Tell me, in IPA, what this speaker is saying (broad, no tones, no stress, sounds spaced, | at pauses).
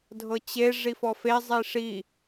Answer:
dʱ ɤ t͡ɕ e ʐ i f ɔ f e zˤ i ʂ i